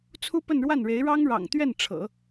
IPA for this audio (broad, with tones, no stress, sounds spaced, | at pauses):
t͡sʰ u˥ p ə˥˧ n ɻ w a˥˩ n ɻ e˧˥ ɪ̯ ɻ ɑ˥ ŋ ɻ ɑ̰˨˩ ŋ t̪ ɥ ɛ˥˩ n ʈ͡ʂʰ ɤ̰˨˩˦